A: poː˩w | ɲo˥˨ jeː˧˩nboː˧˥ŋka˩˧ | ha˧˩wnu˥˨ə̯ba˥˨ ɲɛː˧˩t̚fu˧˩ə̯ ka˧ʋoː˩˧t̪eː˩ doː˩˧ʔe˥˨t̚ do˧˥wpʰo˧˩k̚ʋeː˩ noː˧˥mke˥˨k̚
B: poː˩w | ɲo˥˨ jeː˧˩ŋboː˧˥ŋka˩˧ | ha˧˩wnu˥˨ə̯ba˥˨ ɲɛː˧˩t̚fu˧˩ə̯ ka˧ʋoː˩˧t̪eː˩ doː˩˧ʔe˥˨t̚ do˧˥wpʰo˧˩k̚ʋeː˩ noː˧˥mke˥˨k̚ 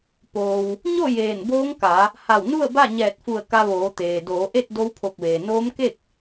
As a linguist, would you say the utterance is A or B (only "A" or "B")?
A